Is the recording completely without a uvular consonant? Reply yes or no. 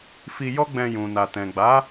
yes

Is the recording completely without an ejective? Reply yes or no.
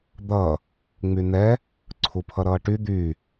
yes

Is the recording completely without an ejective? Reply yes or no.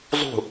yes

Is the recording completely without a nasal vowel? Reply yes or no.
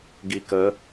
yes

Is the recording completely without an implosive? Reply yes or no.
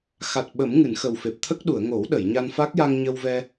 no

